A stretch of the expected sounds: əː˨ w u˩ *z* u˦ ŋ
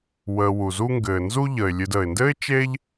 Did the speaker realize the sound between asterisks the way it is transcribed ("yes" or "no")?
yes